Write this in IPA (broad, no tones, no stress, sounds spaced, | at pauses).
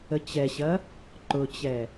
ə t͡ɕ ɛ ɕ ɐ | ǃ ʊ t͡ɕ ɛ